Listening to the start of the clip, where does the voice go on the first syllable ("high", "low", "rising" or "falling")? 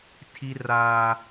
high